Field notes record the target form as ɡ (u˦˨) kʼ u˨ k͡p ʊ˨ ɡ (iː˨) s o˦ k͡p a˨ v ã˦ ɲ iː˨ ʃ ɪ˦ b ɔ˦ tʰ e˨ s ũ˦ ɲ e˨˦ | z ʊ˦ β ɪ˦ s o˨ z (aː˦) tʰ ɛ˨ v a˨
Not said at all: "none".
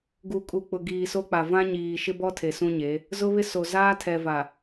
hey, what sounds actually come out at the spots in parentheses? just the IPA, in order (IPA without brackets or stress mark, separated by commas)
u˨, iː˨, aː˦